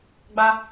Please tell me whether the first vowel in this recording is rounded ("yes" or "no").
no